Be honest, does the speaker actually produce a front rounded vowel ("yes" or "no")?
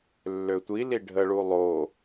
yes